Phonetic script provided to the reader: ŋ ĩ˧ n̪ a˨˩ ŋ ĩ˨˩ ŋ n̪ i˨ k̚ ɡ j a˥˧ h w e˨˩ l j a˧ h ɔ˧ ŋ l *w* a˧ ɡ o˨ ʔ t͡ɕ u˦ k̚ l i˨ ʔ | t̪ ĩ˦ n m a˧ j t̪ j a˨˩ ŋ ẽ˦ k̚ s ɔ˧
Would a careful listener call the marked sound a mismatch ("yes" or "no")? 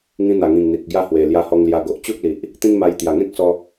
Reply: yes